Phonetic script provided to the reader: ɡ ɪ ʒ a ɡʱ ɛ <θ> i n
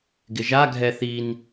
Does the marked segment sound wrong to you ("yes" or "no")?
no